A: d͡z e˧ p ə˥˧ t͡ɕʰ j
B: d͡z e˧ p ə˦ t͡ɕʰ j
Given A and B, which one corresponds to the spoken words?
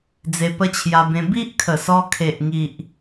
B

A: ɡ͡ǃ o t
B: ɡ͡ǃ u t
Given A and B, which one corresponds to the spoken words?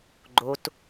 A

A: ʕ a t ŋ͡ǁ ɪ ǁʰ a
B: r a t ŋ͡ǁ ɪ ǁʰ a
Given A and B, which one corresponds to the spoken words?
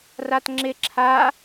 B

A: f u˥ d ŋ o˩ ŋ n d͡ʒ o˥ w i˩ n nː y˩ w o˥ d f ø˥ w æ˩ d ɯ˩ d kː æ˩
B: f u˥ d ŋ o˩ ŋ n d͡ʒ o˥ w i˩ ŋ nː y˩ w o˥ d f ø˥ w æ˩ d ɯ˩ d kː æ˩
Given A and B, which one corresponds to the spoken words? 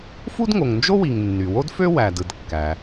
B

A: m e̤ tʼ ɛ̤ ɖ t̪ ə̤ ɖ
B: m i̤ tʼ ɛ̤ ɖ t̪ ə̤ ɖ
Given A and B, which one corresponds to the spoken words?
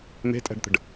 A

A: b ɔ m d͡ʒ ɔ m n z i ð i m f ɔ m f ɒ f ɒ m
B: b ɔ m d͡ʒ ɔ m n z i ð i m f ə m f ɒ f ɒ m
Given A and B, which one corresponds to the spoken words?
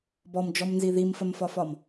B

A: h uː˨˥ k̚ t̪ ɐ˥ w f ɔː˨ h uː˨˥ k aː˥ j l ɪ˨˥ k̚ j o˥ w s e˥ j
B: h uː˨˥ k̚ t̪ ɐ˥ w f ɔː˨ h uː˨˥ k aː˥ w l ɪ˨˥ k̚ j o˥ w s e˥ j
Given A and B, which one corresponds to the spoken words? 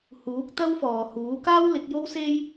B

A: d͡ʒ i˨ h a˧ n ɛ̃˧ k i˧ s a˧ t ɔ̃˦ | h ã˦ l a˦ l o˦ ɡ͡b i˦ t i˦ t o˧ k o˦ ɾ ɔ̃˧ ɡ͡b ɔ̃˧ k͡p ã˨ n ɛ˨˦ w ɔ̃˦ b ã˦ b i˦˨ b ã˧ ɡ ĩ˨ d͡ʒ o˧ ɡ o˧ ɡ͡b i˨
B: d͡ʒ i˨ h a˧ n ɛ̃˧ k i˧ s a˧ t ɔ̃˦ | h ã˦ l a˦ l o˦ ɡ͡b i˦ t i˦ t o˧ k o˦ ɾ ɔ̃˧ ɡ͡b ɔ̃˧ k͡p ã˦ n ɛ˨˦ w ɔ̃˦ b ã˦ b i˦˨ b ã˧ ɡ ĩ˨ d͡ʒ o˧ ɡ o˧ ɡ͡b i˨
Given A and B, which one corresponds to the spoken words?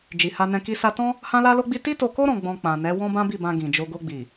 A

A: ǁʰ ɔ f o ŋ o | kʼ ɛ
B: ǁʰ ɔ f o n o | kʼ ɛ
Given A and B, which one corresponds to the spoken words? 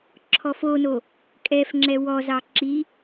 B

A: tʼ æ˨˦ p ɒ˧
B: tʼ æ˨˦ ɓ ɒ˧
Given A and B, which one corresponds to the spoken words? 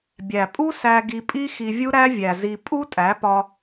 A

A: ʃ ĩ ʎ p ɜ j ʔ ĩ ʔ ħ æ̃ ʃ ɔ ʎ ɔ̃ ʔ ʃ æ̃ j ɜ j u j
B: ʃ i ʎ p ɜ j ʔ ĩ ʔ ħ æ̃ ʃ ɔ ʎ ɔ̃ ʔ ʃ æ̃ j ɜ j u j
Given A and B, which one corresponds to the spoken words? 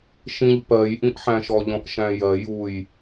A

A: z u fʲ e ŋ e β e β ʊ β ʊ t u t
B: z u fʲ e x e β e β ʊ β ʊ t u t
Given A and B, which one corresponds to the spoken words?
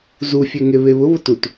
A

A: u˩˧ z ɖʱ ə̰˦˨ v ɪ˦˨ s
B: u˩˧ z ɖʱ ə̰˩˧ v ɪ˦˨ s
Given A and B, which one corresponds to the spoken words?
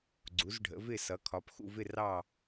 B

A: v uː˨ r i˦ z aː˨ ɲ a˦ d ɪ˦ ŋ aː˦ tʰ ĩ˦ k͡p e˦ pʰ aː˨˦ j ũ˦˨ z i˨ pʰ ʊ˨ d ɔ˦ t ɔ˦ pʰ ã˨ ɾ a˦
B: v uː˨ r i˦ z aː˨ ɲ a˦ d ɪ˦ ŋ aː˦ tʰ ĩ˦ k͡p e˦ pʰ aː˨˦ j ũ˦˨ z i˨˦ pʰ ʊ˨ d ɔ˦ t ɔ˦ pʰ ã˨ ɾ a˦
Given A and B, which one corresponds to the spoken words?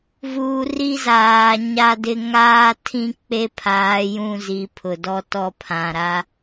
B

